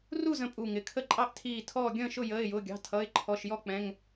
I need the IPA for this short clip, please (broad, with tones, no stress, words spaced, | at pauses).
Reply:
ru˥˨zə̃˧˩ pʼu˧˩ŋɪ˩˧˩kʰə˥˨ǃʼɑ˥˨ʔ tʰiː˧˩ tʰɔː˧˩ ɡʲə̃ː˥˨ʃʊ˥˨ jəː˩˧˩ɪ̯jʊː˩˧˩ɡʲɑ̤˩˧˩ tʰʌ˩˧˩ɪ̯ ǃʰɔ˩˧˩ʃjɔ˥˨k͡pɛ̃˩˧˩ŋ